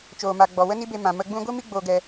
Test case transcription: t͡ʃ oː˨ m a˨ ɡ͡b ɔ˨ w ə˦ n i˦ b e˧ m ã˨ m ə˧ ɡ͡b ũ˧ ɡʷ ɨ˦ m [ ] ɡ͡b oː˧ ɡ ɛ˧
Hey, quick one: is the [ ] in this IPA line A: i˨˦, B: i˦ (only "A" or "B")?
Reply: B